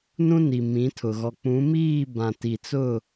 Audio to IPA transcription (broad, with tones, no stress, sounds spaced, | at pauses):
n ũ˦ n i˨ m ĩ˨˦ tʰ ʊ˨ ɣ ɔ˨ k͡p ũ˨˦ m iː˦˨ b ã˨ t i˨ t͡s ʊ˦˨